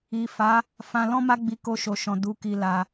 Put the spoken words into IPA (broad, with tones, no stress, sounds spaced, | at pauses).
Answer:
i˨ f a˨˦ | f ã˧ l ɔ̃˦ m a˦ ɡ͡b i˧ k o˧ ʃ o˨ ʃ ɔ̃˨ d u˨˦ k i˧ l a˧